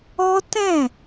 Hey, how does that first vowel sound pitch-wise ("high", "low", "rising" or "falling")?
high